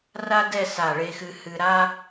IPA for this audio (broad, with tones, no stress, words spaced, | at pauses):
ra˥dɛ˥˧ sa˧˩ɭe˧xɨ˧ hɨ˧ɾa˥